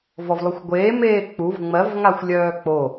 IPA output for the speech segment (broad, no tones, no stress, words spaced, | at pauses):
vɔvlˠʉxʷɡʷeː meːk͡puv ŋ͡mɜv ŋaxʷlʲœːk͡po